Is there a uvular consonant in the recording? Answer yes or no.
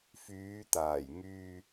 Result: no